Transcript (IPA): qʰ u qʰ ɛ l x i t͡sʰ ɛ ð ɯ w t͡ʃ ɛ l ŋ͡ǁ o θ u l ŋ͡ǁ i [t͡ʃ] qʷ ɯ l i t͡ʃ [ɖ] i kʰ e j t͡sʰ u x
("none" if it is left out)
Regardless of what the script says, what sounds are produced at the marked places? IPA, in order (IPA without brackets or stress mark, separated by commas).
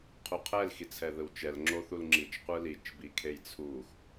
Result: t͡ʃ, b